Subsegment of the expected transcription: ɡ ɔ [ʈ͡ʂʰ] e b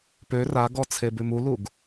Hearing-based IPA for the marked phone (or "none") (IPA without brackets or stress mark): t͡sʰ